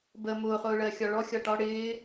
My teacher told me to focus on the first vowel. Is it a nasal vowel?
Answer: no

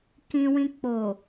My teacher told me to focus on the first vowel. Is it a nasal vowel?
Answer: yes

